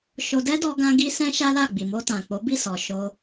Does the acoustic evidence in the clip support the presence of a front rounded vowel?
no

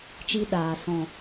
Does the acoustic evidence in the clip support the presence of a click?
no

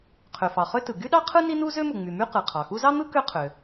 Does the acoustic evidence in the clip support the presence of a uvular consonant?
yes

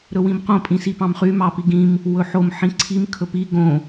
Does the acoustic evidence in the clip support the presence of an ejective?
yes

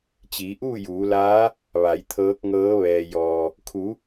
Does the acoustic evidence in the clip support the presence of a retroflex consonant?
no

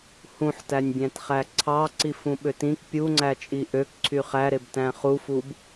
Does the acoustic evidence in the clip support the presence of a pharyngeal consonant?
yes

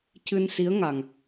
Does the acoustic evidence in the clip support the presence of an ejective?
no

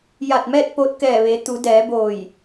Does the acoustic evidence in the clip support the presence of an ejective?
no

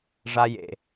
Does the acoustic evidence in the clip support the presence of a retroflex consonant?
yes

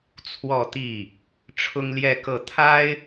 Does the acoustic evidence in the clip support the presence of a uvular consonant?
no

